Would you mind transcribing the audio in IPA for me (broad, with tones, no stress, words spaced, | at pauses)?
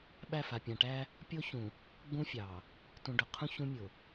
ɓæ˦˨fa˨pʲã˨ʈæ˦ | pʲo˦çũ˨ | ɡ͡bũ˦fʲɑ˨ | tũ˨ɖʊ˨qʰũ˦ çũ˦mʲʊ˨